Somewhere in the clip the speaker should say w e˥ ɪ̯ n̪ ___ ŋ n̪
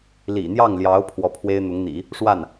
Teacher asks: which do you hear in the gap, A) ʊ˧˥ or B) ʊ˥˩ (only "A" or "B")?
A